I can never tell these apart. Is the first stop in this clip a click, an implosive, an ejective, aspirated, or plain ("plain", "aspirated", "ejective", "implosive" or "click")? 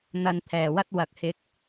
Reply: aspirated